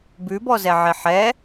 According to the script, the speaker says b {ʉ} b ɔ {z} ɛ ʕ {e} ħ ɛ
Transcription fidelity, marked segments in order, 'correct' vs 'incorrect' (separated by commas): correct, correct, correct